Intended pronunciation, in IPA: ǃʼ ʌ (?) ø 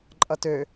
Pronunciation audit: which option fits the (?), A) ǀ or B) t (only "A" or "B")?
B